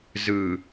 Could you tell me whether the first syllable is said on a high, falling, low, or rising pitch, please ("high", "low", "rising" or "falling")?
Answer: low